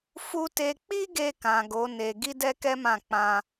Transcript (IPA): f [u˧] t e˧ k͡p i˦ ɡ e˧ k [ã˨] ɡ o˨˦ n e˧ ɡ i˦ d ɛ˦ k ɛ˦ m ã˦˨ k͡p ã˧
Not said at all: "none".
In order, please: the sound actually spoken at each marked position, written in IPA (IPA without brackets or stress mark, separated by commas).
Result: u˧, ã˨